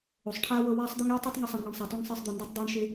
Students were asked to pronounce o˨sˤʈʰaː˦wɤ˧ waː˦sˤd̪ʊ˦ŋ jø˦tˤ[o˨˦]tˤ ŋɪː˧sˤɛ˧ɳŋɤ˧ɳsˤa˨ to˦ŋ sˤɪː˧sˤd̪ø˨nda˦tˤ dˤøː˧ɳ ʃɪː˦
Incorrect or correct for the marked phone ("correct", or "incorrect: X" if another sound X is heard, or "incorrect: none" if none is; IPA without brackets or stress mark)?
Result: incorrect: o˦